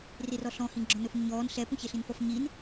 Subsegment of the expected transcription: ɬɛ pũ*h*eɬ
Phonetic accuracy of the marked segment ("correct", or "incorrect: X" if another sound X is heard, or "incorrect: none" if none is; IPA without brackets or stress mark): incorrect: ç